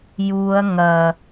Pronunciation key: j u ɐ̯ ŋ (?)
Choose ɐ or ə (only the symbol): ɐ